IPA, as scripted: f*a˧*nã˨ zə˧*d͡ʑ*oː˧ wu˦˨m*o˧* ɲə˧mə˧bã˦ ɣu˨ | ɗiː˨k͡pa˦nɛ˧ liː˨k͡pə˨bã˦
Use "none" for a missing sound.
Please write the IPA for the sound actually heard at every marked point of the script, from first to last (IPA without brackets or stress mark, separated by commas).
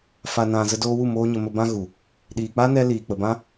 a˨, d, oː˧